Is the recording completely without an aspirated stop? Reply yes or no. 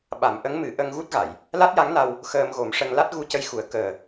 yes